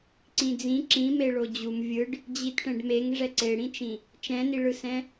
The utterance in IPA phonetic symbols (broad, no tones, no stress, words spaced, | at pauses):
ǀĩd͡zĩ ǁĩme ɭod͡ʑum vʲɯɖ | d͡ʑitʈɛ̃ɖmeŋ ʐɛǀeɽĩt͡ʃĩ | t͡ʃɛ̃niɭɯsɛ̃